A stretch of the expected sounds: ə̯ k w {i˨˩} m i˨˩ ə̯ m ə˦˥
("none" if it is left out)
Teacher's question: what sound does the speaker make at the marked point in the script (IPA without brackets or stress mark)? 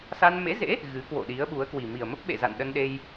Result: i˨˩